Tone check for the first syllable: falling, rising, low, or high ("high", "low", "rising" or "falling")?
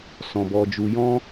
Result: low